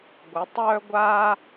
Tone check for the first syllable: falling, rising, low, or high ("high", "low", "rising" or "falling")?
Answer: rising